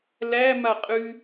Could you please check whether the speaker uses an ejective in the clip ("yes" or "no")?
yes